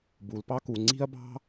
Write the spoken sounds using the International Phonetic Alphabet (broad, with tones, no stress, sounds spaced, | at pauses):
b u˩ l p ɑ˥ k u˩ ŋ͡ǀ i̤˥ ɐ̯ b ɑ̤˥